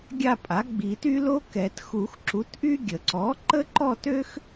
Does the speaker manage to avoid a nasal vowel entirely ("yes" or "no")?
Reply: yes